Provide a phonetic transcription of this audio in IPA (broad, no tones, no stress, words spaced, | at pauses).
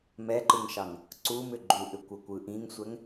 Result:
mɛǃɯŋʃɑŋ | ǀumʏ ɡ͡ǃuʔʏkʷɤkʷɯ ʔĩŋsʷɛŋ